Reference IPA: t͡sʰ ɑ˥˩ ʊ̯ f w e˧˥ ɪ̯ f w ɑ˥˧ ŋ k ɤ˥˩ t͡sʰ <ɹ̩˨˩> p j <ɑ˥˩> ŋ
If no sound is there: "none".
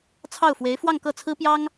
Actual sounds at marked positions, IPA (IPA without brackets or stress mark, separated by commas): ɹ̩˥, ɑ˥